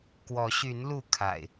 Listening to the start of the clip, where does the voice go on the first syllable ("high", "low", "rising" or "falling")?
rising